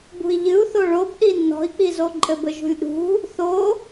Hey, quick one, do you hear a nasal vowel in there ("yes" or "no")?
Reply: no